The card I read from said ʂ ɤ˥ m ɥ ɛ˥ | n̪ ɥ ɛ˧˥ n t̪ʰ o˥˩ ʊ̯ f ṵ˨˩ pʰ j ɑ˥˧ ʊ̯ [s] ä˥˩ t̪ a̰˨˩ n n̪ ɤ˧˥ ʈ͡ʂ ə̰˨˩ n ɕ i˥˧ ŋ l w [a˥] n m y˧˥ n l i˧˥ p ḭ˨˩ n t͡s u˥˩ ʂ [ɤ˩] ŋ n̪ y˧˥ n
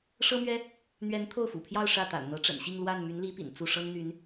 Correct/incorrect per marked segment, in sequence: incorrect: ʂ, incorrect: a˥˩, incorrect: ɤ˥

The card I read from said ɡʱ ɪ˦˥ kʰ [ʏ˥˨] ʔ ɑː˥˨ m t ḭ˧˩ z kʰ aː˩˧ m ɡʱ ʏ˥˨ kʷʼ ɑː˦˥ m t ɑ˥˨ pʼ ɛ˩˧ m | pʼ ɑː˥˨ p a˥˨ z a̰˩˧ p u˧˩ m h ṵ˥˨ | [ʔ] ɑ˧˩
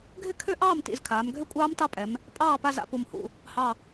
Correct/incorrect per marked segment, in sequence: incorrect: ʏ˦˥, incorrect: h

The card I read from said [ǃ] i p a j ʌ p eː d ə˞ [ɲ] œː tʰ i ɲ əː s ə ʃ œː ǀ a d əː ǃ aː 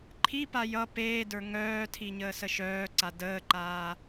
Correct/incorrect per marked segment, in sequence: incorrect: ǃʰ, incorrect: ŋ

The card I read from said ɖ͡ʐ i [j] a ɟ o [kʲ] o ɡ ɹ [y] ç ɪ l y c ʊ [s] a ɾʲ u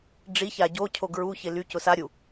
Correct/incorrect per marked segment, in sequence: incorrect: ç, incorrect: cʰ, incorrect: u, correct

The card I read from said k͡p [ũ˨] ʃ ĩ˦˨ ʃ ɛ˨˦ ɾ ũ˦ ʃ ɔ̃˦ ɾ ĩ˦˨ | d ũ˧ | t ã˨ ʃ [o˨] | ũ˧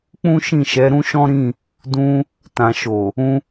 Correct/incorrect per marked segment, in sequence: incorrect: ũ˦, correct

